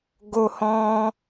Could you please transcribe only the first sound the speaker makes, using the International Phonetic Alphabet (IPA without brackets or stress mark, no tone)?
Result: ɡ